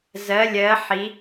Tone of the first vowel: rising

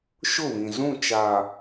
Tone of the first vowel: falling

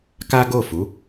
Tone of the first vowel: high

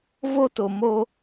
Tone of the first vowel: high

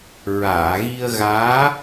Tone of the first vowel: low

